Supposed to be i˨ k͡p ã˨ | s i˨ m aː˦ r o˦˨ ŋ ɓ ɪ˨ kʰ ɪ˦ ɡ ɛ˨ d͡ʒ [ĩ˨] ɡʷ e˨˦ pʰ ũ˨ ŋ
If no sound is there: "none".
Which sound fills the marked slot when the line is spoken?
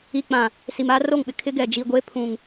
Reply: i˨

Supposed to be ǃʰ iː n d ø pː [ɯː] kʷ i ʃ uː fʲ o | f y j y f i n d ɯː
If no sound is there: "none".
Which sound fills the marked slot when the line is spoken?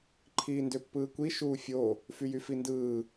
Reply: ɯː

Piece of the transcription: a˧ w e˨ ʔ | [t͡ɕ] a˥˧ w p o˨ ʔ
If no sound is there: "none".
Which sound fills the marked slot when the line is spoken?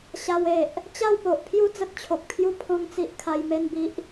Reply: t͡ɕ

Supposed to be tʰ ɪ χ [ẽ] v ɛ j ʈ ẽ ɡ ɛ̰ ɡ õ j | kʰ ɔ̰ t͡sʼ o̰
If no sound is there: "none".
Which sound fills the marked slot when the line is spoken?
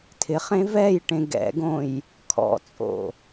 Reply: ẽ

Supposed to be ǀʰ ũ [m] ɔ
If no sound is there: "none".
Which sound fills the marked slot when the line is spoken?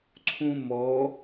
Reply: m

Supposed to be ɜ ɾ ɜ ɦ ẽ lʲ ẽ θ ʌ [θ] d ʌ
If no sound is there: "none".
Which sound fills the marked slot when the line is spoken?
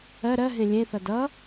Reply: none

